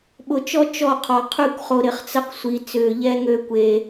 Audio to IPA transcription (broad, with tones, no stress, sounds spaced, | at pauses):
ɓ ʊ˨ t͡ʃ ɔ˦ t͡ʃ ɔ˦˨ qʰ ɔ˨ qʰ y˦˨ kʷ χ o˨ ɾ ɪ˨ χ t͡s ə˦ q sʷ i˨ t͡s ʏː˨ ʎ ɛ˦ ŋ ø˦ kʷ e˦